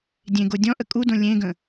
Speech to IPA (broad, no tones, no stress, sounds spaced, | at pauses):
dʲ ẽ ɡ o dʲ ɔ̃ ʔ ə kʼ u d õ lʲ ẽ ɡ ə̃